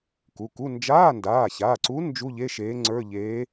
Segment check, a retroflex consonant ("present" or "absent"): absent